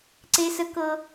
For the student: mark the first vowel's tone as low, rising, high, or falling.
high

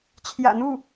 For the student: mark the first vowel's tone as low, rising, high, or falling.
low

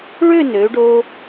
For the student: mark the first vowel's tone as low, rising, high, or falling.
falling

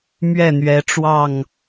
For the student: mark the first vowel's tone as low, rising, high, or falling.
falling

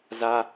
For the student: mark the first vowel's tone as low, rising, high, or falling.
high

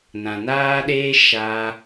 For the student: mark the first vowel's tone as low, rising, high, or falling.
low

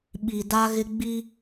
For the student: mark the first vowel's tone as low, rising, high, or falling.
low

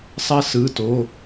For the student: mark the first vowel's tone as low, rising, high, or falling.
high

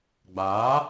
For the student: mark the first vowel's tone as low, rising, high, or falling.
rising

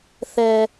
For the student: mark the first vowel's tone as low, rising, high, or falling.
low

